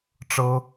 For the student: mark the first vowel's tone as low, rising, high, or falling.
high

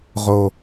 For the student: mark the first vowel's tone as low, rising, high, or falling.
low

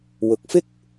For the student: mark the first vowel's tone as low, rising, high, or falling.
rising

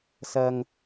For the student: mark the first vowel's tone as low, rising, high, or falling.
low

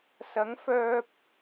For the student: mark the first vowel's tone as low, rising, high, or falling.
rising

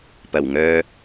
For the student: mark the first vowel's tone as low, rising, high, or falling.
low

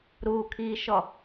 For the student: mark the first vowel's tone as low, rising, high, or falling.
low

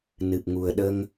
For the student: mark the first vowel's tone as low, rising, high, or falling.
low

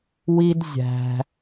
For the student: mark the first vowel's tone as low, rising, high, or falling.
high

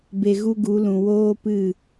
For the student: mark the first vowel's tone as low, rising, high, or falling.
low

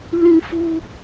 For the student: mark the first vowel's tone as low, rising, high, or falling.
high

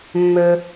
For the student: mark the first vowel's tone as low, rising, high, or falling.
low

